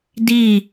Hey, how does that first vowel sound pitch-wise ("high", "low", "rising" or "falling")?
falling